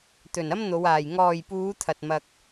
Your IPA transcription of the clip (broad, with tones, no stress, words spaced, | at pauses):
t̪ɵ˨nɐ˥mn̪o˨˧waː˨j ŋɔː˨jpuː˨˧t̪ʰɐ˨t̚ mɐ˧k̚